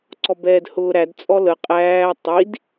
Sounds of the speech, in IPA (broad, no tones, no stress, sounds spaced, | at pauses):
ǀ ɔ b ɛː d h ʊː ɾ æ d t͡sʼ ɔ l ə qʼ æː tˤ i d